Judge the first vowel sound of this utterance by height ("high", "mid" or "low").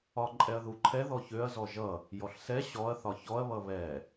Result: low